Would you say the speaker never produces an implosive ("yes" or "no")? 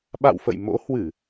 no